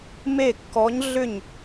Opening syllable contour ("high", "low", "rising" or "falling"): falling